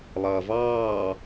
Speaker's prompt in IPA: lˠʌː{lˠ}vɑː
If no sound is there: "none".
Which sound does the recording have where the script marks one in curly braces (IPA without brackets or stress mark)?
none